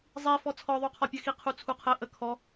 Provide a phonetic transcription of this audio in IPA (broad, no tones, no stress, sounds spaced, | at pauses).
zˤ i f ɔ t͡sʰ ɔ ðˤ u qʰ ɔ pʲ ɜ x i qʰ u t͡sʰ u qʰ ə ʔ ə kʰ ɔ